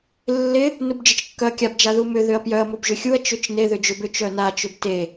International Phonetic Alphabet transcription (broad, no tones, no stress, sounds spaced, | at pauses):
lː ɪ | n u b d͡ʒ ɪ t͡ʃ kː œ ɐ̯ kʲ a b d͡ʒ a ð u m ʏ ð ʏ ɐ̯ p j œ ɐ̯ m ʊ b ʒ ʏ xʲ u ɐ̯ t͡ʃ ʏ t͡ʃ n e ð ʏ d͡ʒ ʏ b ʏ t͡ʃ œ n a t͡ʃ ʏ b t e